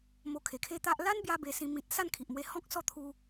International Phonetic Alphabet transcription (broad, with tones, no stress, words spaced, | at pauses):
mo˧kʰe˨˩kʰe˦t̪a˦ʔ la˦nbja˧ be˧sĩ˧ mĩ˨t̚ sa˥˧nkʰi˨ʔmwe˧hɔ̃˦k̚ sɔ˦t̪ʰu˧